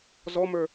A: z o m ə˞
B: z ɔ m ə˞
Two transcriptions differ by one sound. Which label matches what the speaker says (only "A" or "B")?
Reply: B